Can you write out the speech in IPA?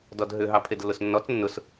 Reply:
dɔdɦʏ ɦɑpʰedlːʊsnːɔt͡s nːʊs

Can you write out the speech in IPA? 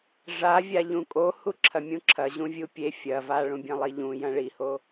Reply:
ʐavʲa ʎũkʼo huǁʰɐmʲũǁʰɐ ʑũvʲupʲe fʲɐ vaɭũbʲɐ̃lˠi ʎũ jɐ̃ɭiho

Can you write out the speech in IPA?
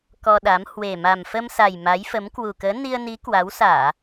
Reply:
kɔ˧ɗa˨˦m hwe˨˩ma˨˩mfə˧msa˨˩j ma˨˦jfə˨˦m kwu˨˩kəː˨˦ ni˧ə̯ni˨˦ kwa˨˦wsaː˧˩˨

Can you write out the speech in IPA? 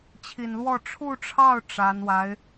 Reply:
t͡ɕʰi˨˩nlwɔ˥˧ ʈ͡ʂʰu˥˧ʈ͡ʂʰɑ˥˩ʊ̯ ʈ͡ʂa˧˥n wa˧˥ɪ̯

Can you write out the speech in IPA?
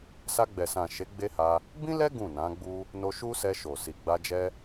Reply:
sa˧ɡ͡bɛ˨sã˨ʃe˨˦ ɡ͡be˦ha˧ | bĩ˦lɛ˦ ɡũ˦˨nã˨˦ɡ͡bu˦ | no˧ʃu˦sɛ˧ ʃo˨ si˨ɡ͡ba˧d͡ʒɛ˦

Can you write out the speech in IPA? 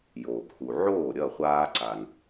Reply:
joː˩pxu˩ ʕoː˥˩ɾʲʌ˥˩ χʷaː˧ ǀa˩n

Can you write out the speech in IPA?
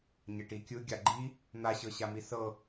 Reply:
ɲɛʈikʲɯ ɡʲaɡ͡ǃi | n̪aɕɤɕami sɤ

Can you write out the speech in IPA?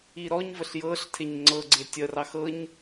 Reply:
iɾɔɲvəɬ jɤɬ tʰeɲŋ͡ǀɤɡ͡ǀe tʲərɑx ɤɲ

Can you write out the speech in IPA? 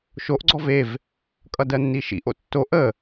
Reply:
ʃoʔ ɡ͡ǀɔvev | kʼʌdɜnːiʃḭ ʔo̰tːo ʔə

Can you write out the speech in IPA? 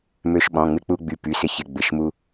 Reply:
mø˧ʃɓɔ̃˩˧˩ ŋ͡mɪ˧k͡pu˧ɡ͡by˩˧˩ py˩˧˩sɪ˧çɪ˩˧˩ ɡ͡bɪ˩˧˩ʃmu˧

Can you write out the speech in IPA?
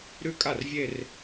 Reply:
ɾʉ˥˩kʼa˥˩rvʲe˥˧r

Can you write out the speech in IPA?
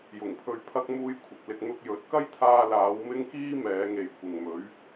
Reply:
jʊ˨˩ŋpʰɵ˧ɥpʰɐ˥k̚ muː˧j kʷʰɪ˨k̚lɪ˧k̚ n̪ʊ˧k̚jɵ˨˥t̚ kɐ˥jt̪ʰaː˧laː˨˧w mɪ˥ŋkiː˥mɛː˨˧ŋe˨j kʷɪ˨ŋmɵ˨˥ɥ

